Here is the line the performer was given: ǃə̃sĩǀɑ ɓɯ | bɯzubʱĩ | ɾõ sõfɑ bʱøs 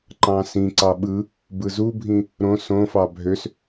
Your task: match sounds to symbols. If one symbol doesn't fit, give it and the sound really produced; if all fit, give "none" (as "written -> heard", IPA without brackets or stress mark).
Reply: ə̃ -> ɑ̃